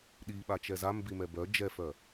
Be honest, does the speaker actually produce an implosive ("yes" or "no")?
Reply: yes